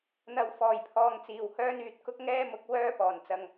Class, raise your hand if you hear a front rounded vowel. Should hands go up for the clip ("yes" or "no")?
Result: yes